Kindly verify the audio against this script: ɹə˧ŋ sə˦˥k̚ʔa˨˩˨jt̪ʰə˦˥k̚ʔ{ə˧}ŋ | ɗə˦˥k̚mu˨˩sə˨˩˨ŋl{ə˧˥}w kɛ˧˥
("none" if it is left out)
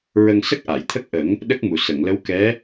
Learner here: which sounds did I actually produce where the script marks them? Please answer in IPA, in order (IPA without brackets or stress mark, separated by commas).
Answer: ə˨˩˦, ə˧˥